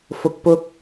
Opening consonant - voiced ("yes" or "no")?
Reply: no